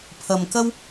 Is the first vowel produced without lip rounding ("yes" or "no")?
yes